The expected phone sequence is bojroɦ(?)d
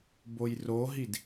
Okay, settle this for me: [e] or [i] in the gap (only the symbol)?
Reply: i